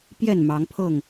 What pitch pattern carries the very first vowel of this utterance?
falling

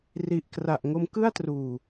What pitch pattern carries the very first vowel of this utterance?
low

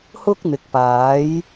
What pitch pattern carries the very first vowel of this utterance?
high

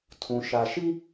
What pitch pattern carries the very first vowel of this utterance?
low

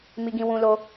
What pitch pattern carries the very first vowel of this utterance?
high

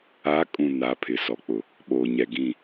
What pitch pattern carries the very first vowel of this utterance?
rising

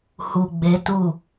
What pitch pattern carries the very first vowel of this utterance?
low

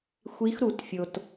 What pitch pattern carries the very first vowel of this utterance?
rising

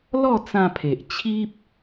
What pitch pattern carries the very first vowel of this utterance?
falling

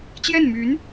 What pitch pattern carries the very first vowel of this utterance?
falling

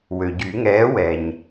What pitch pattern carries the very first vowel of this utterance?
low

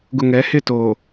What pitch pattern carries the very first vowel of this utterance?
low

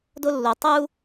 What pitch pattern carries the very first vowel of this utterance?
high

